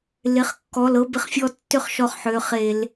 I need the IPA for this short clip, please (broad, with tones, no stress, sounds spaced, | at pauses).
l ɪ˩˧˩ χ kː ɔ˩˧˩ l ɤ˧ b ɪ˧ χ fʲ ɔ˧ tː ʏ˥˨ χ ʃ ɔ˧ χ ħ ø˩˧˩ χ e˧˩˧ l